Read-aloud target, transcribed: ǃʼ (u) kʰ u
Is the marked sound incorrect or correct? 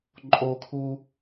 incorrect: o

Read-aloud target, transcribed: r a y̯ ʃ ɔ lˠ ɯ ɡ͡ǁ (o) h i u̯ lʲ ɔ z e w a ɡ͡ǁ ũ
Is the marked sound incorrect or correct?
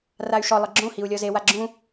incorrect: õ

